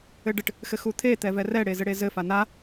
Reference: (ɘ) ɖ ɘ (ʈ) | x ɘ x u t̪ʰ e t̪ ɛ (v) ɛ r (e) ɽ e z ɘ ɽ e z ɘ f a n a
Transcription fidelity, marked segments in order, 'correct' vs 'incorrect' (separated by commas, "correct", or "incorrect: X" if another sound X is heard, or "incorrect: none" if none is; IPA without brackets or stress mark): correct, correct, correct, incorrect: ɛ